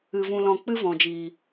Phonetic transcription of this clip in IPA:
ɨ˧vũ˧ lɔ̃˧k͡pɨ˦vɔ̃˨d͡ʒiː˨

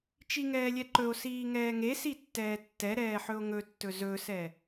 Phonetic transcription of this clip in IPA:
t͡ʃiŋɛːlʲɛǃɵo̯ siːŋɛːŋe sitːɛːtːɛ ɾɛːħɵo̯ŋɵtːɵ zɵsɛ

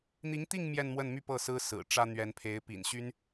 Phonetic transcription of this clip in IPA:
n̪i˧˥ŋt̪i˥˧ŋ mjɛ˥˧nmwə˥˧nmy˥˧ pɤ˥˩sɹ̩˥sɹ̩˨˩ ʈ͡ʂä˥n̪ɥɛ˧˥npʰe˧˥ɪ̯ pḭ˨˩nɕy˥n

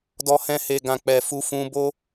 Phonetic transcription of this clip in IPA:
dɔ˧hɛ̃˧he˨ɡã˨ k͡pɛ˨ fu˧fũ˧bo˦

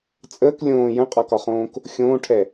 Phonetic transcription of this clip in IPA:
t͡sʼəːk lʲõː jə̃qʼɒkɒχõːk | xʲõːʈʰɛ

